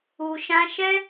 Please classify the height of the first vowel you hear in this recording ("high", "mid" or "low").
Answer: high